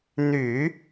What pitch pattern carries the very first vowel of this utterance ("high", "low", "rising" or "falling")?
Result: low